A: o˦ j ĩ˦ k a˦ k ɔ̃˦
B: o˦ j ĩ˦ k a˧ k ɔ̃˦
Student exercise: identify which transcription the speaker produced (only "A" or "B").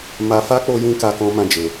A